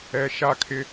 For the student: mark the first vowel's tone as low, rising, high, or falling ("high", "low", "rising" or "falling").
low